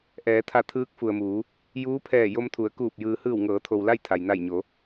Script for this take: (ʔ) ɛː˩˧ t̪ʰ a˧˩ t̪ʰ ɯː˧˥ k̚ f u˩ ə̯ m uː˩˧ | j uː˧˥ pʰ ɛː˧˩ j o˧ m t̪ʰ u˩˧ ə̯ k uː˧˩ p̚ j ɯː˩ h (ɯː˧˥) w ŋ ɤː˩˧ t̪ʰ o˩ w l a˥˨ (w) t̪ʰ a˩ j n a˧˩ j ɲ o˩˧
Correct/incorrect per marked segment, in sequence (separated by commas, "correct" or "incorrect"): correct, incorrect, incorrect